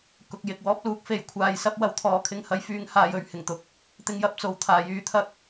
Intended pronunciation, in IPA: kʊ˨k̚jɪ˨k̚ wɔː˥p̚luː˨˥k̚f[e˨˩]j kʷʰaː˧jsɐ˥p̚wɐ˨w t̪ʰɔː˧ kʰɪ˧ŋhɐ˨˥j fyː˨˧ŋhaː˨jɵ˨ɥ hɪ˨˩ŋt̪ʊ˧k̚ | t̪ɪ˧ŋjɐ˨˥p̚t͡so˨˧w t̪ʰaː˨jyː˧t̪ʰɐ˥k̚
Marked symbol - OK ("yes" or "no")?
no